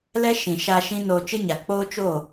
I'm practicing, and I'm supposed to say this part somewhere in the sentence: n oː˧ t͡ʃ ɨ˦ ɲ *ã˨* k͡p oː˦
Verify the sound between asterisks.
incorrect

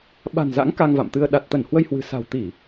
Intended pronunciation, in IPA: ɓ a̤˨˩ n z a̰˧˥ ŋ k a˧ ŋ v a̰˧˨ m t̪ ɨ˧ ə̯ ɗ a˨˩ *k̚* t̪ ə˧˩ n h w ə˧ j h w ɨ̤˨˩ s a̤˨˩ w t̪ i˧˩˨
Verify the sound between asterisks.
incorrect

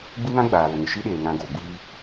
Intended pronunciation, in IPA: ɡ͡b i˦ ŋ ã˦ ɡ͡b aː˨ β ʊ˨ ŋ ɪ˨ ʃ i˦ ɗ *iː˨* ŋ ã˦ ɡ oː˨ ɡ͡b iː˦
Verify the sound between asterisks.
incorrect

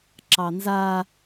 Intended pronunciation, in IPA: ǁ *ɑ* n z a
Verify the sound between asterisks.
correct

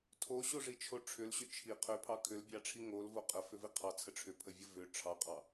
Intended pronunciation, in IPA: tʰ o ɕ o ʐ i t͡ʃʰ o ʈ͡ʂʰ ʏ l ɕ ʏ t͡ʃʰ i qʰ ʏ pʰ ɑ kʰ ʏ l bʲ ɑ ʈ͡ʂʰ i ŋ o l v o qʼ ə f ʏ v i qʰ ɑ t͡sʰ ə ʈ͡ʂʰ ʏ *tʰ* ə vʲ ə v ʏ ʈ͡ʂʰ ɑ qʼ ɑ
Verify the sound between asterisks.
incorrect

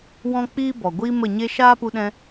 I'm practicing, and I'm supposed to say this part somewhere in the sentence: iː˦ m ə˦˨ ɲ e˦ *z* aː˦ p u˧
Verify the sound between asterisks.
incorrect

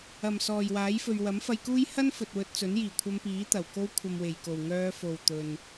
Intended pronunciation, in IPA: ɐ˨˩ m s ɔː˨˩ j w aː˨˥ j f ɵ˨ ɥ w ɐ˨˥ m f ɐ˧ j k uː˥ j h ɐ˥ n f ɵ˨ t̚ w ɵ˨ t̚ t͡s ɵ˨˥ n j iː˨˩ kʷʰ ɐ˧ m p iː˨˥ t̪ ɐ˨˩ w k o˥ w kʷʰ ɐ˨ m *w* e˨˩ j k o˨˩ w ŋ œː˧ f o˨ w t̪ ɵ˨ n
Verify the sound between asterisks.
correct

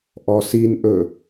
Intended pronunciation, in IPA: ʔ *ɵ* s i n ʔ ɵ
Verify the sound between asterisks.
incorrect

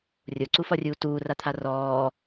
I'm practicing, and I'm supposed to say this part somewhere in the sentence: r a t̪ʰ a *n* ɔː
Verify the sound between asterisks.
incorrect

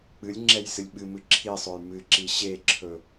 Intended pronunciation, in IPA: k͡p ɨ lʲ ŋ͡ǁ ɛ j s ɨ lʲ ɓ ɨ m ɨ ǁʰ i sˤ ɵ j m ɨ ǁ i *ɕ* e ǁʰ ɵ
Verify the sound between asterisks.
correct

